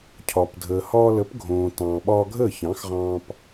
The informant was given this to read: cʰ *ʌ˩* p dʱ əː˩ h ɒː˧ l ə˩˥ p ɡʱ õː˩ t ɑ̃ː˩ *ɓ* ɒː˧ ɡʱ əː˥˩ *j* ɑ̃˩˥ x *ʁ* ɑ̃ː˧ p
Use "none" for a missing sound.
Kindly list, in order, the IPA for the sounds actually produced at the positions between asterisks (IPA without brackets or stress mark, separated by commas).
ɒ˩, ɓ, ç, ʁ